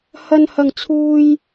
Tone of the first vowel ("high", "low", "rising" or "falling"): low